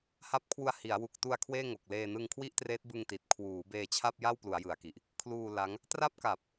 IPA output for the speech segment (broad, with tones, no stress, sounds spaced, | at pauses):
h a˦˥ p̚ kʰ w u˧ a̯ h i˩˦ a̯ w u˨˩ k̚ t u˧ a̯ kʰ w eː˥˩ ŋ o˨˩ k̚ l eː˧ n ɯ˧ ŋ kʰ w i˥˩ ʔ t r eː˦˥ t̚ b ɯ˧ ŋ t i˨˩ t̚ kʰ w uː˩˦ b eː˧ t͡ɕʰ a˥˩ p̚ j a˥˩ w p l u˩˦ a̯ j ɯ˩˦ a̯ k i˨˩ ʔ | kʰ l uː˧ l a˦˥ ŋ | t r a˦˥ p̚ k a˨˩ p̚